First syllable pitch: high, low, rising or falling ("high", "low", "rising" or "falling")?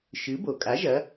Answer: rising